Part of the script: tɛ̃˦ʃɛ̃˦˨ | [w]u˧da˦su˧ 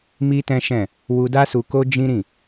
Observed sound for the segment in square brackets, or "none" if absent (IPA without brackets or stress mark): w